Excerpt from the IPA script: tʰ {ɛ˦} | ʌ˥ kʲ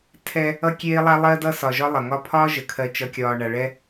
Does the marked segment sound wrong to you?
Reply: no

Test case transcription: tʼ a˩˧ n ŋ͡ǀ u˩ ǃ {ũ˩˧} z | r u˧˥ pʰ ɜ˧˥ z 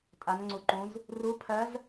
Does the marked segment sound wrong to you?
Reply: no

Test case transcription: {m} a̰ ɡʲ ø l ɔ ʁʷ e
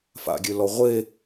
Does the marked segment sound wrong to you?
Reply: yes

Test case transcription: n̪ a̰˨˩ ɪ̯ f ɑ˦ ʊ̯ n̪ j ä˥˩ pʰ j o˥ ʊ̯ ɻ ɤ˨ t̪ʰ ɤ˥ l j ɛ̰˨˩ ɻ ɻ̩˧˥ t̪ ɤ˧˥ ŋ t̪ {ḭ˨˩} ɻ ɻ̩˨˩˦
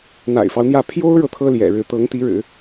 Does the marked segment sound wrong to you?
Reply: yes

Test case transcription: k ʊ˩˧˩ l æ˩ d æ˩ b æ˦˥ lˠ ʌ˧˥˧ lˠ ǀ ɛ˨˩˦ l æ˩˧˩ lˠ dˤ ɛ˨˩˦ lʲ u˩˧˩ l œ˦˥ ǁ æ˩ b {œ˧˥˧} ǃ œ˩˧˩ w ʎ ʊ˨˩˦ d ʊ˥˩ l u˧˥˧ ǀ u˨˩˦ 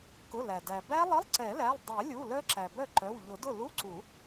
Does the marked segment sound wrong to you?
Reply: yes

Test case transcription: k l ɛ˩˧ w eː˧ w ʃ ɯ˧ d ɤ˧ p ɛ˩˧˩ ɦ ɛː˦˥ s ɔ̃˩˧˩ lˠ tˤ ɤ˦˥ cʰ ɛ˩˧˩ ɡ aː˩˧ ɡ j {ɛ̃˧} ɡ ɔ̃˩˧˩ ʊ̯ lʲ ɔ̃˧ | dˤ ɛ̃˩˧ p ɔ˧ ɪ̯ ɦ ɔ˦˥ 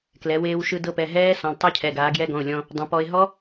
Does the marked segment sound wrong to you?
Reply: yes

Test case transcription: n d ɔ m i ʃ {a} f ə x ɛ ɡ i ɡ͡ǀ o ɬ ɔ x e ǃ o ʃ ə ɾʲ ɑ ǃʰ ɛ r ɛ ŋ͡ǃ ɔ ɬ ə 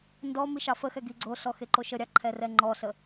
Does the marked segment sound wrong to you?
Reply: yes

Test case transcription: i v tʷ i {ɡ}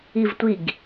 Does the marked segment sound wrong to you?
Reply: no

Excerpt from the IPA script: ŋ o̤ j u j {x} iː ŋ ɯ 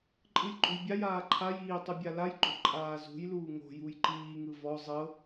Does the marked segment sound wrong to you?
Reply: yes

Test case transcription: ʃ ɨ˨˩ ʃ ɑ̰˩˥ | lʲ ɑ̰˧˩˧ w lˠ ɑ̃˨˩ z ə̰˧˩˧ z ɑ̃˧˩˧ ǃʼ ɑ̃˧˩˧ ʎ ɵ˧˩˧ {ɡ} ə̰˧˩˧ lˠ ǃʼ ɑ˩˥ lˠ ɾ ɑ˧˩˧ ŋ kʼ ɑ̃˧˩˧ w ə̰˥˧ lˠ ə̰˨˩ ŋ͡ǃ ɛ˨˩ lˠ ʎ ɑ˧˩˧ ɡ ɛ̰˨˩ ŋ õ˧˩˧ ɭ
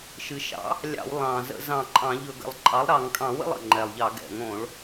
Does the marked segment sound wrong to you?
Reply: no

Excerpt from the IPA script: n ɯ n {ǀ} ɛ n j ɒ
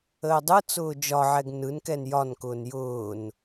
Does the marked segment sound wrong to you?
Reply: yes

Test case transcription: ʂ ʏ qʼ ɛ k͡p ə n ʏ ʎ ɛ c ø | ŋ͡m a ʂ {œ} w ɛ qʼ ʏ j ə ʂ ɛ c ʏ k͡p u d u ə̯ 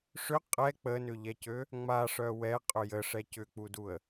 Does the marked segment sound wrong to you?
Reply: no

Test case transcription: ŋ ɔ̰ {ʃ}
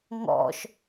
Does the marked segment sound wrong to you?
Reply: no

